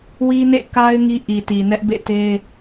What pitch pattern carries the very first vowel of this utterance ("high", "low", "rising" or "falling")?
high